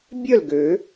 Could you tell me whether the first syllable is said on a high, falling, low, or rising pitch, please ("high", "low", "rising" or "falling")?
falling